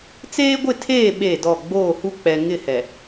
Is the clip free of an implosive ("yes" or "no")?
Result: no